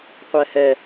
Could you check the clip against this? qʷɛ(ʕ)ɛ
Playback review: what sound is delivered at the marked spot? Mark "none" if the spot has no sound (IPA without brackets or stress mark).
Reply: h